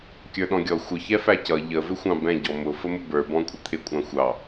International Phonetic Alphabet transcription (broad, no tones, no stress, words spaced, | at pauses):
kʲə˞ɗɔ̃ɡʲɔ xʷə çɛfæcʌ ʎə vɪxʷɑ̃bɛ̃ ɟɔmʊ fəmʊbə˞ bɔ̃kʷʼət̪ʰɪ kʷʼɑ̃xʷɑ